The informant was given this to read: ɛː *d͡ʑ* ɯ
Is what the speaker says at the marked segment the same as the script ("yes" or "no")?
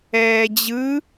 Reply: yes